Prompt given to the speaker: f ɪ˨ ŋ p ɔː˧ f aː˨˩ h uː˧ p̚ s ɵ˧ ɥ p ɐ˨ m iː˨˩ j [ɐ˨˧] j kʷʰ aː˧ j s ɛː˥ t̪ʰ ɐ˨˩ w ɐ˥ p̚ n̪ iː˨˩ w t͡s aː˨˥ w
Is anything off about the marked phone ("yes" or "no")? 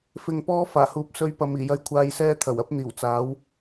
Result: yes